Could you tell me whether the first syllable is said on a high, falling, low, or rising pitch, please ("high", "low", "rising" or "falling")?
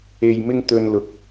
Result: low